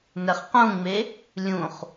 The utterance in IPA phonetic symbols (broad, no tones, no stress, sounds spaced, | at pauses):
n ɛ χ q ũ ŋ͡m e | lʲ ũ χ